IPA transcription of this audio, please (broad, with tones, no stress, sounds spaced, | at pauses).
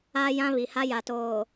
a˦ j ã˦ β i˨ h a˦ j a˨ t oː˨